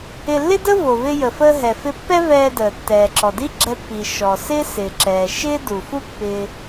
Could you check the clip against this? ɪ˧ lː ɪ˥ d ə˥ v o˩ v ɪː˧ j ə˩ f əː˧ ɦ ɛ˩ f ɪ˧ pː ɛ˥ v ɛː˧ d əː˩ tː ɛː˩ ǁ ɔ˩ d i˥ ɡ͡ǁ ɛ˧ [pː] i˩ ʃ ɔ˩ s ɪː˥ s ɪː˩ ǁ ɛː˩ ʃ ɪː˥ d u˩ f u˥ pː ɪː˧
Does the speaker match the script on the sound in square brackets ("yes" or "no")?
yes